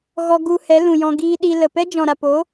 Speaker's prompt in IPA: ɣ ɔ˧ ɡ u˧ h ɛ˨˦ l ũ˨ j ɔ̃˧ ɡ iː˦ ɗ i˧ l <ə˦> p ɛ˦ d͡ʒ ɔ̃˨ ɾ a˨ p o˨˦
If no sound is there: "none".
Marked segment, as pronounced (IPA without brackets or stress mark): ə˨